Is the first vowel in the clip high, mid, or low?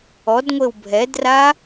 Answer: mid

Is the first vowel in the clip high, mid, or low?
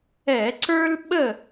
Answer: mid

